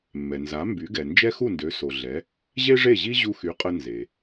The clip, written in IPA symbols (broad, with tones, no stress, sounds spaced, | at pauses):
mː ɛ˩ n z a˩˥ m b y˩˥ ɡ ɛ˩ n d͡ʒ ɛ˥ x u˥˩ n d ø˩˥ s o˩ ɮ ɛ˩˥ | ʑ e˥ ʐ e˥˩ ʑ i˥ ʑ u˧ x y˩˥ qʼ ə˧ n z e˩